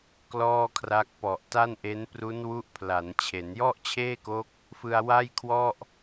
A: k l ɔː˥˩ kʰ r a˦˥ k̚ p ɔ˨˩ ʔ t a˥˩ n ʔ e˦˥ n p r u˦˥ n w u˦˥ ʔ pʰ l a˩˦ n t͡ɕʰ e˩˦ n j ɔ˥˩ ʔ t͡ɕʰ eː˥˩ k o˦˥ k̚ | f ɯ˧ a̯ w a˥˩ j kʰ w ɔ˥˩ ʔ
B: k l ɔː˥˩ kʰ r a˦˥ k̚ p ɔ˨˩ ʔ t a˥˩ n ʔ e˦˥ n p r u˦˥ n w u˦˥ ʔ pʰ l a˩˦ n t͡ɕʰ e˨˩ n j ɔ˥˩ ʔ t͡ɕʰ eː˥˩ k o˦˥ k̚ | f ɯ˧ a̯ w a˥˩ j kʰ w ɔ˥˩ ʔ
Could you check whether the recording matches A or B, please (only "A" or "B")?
A